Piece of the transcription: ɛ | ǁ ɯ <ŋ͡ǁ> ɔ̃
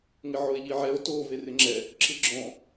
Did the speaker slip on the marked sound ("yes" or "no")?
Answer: yes